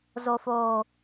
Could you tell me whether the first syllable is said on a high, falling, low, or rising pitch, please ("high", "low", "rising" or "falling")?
low